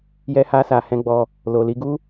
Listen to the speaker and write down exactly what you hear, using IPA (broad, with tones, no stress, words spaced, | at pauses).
jɛ˧ha˧ sa˨hɛ̃˧ɡ͡bɔ˧ | lo˨li˧ɡu˦